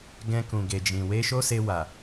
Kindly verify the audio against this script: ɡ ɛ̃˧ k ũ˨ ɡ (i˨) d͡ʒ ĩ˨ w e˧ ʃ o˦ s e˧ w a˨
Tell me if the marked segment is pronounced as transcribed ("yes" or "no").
no